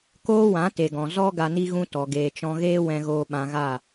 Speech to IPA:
k oː˦ w ã˨˦ t e˨ ɡ ɔ̃˨ z ɔ˦ ɡ a˧ n i˦ ɣ ũ˦ t ɔ˨ ɡ eː˨ t͡ʃ ɔ̃˧ ɣ eː˦ w ɛ̃˦ ɣ oː˦ ɓ ã˧ ɣ a˦˨

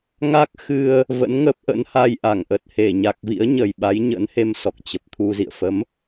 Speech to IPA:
ŋ a˦˥ k̚ x ɨ˧ ə̯ | v ə̰˧˥ n ŋ ə˦˥ p̚ ʔ ə̰˧˥ n h a˧ j ʔ a˧˩ ŋ ʔ ə˨˩ t̚ h e˧˩ ɲ a˨˩ k̚ v ḭ˧˥ ə̯ ɲ ə˨˩ j ɓ a˨˦ j ɲ ə̰˧˥ n h e˧ m s ɔ˨˩ k̚ t͡ɕ ə˨˩ p̚ t̪ʰ u˧ z ḭ˧˨ ə̯ f ə˨˦ m

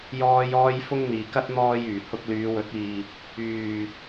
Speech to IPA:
j ɔː˥ j ɔː˥ j f ʊ˥ ŋ n̪ iː˨ k ɐ˥ t̚ n̪ ɔː˧ j yː˨˩ h ʊ˧ k̚ l yː˨˧ w ɵ˨˥ t̚ iː˨ | yː˨

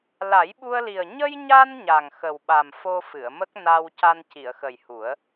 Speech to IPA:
l a˨˩˦ j ɓ u˧ ə̯ l i˨˩ ə̯ ɲ ə˧ j ɲ a˧ n ɲ a˨˩ ŋ x ə˨˩ w ɓ a˨˩ m f o˧ f ɨ˨˩˨ ə̯ m ə˦˥ k̚ n a˧ w c a˧ n c i˨˩˨ ə̯ x ə˨˩ j h u˨˩˦ ə̯

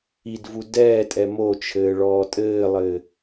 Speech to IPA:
i d v u d ɛː tʼ ɛ m o t͡ʃʰ ɘː ɭ ɔː tʼ ɘː lˠ ɘ

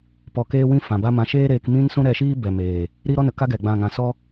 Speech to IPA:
p ɔ˧ k eː˦ w ĩ˦ f ã˨ b a˦ m ã˧ ʃ eː˦ ɾ eː˧ k m ĩ˦ n s ũ˦ ɾ ɛ˧ ʃ iː˦ b ɛ˨ m eː˨ | ɾ i˦ ɾ ɔ˦ n ə˨ k a˦ ɡ ɛ˨ ɡ͡b ã˦˨ ŋ ã˧ s ɔ˦

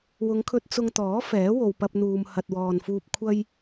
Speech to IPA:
w ʊ˨˧ ŋ kʰ ɵ˧ t̚ t͡s ʊ˧ ŋ t̪ ɔː˨˥ f ɛː˨˥ w o˨ w p ɐ˧ p̚ n̪ uː˨ m h ɐ˨ t̚ w ɔː˨ n f uː˧ p̚ kʷʰ ɐ˥ j

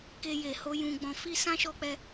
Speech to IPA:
k e˧ j e˨ h o˧ j ũ˨ ɡ͡b ɔ̃˨ f i˧ s ã˦ ʃ ɔ˧ k͡p ɛ˧

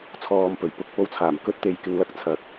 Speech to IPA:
t͡sʰ ɔː˨˧ m p ɵ˨˩ ɥ p ʊ˧ k̚ p o˧ w t͡sʰ aː˨˩ m k ɵ˥ t̚ t̪ e˨ j k ɪ˧ ŋ l ɐ˥ k̚ t͡sʰ ɐ˨˥ k̚

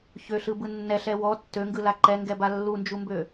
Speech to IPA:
ç ø ɬ ɯ b ɯ nː ɛ ɬ ɛ w ɔ tː ø ŋ ɡ ɯ l a ǃ ɛ ŋ ɡ ɛ b a lː u n d͡ʒ u m b ø

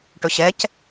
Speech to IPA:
ʈ ɵ ɕ ɛ c

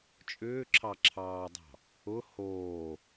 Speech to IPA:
t͡ʃʼ ʏː ǁʰ ɑ ǁʰ ɑː dˤ ɑ̤ | ʊ h oː

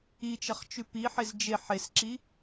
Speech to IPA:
i t͡ʃ ɐ χ t͡ʃ ʉ p i ħ e z d͡ʒ e ħ e s ǁ i

